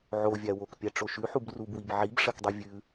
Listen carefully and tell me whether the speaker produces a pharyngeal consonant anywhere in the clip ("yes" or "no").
yes